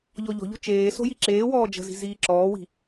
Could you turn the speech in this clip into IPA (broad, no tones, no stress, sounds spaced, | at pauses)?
ʎ ɔ ʎ ɔ̤ ʎ o̤ t͡ʃ eː s o̤ j i ǁ eː w ɔː d͡ʒ ə̤ z i̤ z iː ǁ ɔː w i̤